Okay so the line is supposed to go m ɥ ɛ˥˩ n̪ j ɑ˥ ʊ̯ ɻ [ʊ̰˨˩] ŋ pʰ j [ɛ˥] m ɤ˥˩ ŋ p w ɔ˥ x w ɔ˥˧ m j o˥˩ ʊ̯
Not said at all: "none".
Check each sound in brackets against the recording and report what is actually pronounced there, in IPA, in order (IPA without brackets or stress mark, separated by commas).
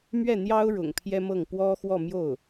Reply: ʊ̰˨˩, ɛ˥